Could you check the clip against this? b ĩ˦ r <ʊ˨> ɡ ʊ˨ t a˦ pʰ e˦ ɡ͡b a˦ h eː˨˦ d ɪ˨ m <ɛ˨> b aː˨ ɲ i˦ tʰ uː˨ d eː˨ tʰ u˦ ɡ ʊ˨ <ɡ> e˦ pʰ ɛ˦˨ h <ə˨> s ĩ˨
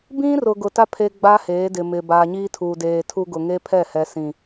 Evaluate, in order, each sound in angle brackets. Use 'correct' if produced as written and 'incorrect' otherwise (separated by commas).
correct, incorrect, incorrect, incorrect